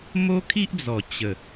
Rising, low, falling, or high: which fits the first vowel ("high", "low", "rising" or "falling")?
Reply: high